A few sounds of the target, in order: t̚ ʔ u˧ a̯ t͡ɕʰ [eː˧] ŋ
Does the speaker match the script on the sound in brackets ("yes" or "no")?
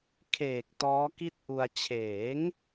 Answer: no